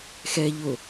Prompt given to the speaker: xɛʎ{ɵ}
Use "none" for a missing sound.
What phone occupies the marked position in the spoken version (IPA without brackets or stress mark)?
ʊ